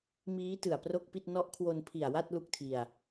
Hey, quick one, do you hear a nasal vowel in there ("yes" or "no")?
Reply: no